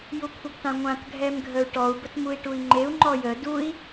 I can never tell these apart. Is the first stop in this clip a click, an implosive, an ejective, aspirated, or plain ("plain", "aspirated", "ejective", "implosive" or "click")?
aspirated